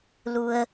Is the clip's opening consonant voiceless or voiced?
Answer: voiced